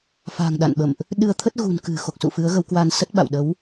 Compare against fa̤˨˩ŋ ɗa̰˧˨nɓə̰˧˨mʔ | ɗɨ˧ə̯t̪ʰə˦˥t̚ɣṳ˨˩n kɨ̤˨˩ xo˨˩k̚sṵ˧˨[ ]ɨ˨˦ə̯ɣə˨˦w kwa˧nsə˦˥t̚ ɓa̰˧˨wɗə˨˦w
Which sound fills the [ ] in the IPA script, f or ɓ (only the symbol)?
f